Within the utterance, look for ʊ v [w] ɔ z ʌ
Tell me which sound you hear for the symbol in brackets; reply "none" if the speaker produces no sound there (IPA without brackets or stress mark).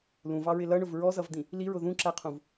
ɹ